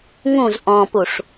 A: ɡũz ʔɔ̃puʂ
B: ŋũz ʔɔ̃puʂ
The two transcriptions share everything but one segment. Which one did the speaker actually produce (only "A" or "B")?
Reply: B